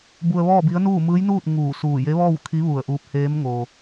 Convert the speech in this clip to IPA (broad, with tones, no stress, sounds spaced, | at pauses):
b u˧ ə̯ ʋ ɔː˥˨ b i˧˥ ə̯ n uː˥˨ m ɯː˧˥ j n uː˥˨ t̚ ŋ uː˧˩ s uː˧˩ j e˧˥ ʋ ɔː˥˨ w kʰ i˧˥ ʋ u˧˩ ə̯ ʔ uː˧ p̚ h eː˧˥ m ŋ o˧